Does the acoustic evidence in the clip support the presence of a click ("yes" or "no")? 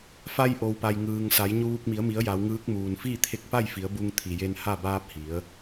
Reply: no